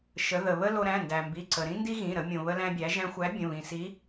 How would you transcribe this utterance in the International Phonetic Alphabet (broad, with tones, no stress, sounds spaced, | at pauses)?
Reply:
ʃ ə˩˧ ð ə˩ β ə˥ l o˧ ɾ æ̃˩˧˩ n d æ˩ m b i˩˧˩ ǀ ə˩ ɾ ĩ˥ n d i˥ ɣ ĩ˩˧˩ ɾ ə˩˧ mʲ õ˩ β ə˧ l æ̃˧ bʲ æ˩˧ ʒ æ̃˧ xʷ æ˨˥ bʲ ə̃˩˧˩ β ĩ˩ s i˨˥